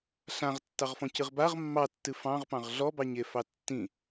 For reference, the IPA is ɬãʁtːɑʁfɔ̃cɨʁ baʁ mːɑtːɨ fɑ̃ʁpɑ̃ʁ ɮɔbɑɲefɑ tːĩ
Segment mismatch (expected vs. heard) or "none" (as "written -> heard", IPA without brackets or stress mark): none